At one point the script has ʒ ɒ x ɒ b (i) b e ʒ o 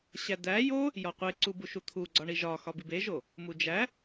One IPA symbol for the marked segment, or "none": i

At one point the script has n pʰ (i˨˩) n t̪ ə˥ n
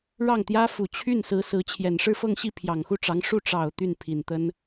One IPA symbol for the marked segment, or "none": i˨˩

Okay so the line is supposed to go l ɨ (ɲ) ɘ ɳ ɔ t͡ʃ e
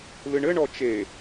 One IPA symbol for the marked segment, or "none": ɳ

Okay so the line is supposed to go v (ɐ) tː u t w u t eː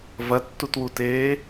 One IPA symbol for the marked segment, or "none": ɐ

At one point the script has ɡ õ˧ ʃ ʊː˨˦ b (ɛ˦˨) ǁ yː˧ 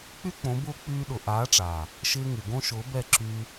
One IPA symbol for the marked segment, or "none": ɛ˦˨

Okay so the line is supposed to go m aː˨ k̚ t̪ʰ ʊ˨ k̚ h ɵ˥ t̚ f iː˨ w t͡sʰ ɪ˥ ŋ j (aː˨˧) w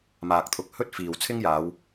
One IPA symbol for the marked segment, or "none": aː˨˧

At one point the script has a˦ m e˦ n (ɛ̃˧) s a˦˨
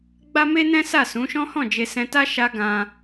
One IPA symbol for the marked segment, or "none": ɛ̃˦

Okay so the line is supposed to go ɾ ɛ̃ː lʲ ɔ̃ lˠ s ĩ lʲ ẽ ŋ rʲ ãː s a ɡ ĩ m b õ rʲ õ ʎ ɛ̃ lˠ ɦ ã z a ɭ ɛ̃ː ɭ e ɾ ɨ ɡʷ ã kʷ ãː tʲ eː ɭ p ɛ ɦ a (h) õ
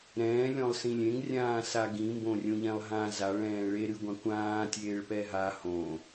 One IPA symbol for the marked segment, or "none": h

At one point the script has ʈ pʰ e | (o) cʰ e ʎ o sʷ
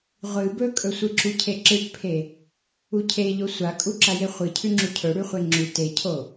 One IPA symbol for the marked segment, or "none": u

